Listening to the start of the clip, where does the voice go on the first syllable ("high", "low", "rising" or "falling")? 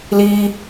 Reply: high